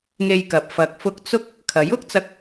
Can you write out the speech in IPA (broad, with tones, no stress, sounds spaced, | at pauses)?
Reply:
ŋ e˧ j k ɐ˨ p̚ f ɐ˨ k̚ f ʊ˧ k̚ t͡s ʊ˥ k̚ | kʰ ɐ˨˥ j ʊ˥ k̚ t͡s ɐ˧ k̚